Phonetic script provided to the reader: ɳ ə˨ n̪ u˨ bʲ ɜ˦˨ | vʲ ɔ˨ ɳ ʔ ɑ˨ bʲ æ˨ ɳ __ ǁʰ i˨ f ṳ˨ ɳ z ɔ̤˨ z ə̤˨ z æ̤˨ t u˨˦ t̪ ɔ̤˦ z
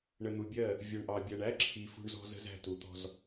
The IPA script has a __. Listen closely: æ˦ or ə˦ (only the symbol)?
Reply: æ˦